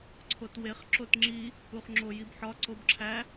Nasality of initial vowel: oral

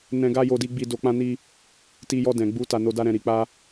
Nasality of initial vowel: nasal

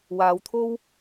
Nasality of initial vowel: oral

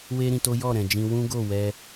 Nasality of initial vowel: oral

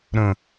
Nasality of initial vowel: nasal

